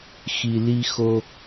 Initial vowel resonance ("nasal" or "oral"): oral